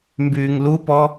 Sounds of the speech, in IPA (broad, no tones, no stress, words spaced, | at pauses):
mbyːŋlupɔ